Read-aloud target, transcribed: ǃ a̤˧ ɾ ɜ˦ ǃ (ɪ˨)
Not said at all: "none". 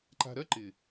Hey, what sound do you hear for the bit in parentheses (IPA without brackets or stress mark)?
ɪ˨